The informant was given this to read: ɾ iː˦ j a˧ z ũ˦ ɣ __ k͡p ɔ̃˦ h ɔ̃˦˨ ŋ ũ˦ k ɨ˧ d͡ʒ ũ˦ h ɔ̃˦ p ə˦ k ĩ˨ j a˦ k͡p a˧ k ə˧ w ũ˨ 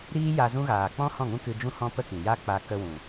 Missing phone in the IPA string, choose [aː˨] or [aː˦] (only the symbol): aː˨